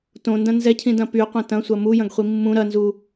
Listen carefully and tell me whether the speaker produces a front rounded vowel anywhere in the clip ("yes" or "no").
yes